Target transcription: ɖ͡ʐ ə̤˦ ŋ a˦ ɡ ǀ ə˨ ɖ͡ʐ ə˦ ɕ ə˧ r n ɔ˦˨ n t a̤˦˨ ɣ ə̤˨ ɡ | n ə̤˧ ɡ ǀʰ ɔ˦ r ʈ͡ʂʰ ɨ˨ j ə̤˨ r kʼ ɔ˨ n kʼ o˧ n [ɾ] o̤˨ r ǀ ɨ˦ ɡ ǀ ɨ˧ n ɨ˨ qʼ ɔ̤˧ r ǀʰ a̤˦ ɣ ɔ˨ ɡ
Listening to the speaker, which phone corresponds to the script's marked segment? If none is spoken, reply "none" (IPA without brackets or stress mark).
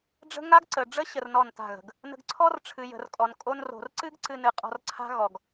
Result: r